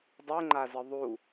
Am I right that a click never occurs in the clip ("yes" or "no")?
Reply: no